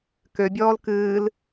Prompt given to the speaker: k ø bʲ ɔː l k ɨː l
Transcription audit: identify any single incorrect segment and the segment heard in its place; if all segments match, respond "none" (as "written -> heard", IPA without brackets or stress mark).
none